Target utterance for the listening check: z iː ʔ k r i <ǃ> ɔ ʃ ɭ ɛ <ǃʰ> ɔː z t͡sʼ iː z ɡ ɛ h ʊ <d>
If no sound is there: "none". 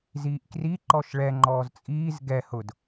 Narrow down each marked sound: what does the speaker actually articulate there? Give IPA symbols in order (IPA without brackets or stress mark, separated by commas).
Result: ǃ, ŋ͡ǃ, d